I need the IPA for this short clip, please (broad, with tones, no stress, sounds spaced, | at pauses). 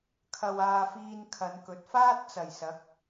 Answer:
kʰ ɐ˧ w aː˧ f iː˧ n kʰ ɐ˨˧ n k ɵ˨˥ t̚ f aː˥ t̚ t͡s ɐ˨˩ j s ɐ˨˥ k̚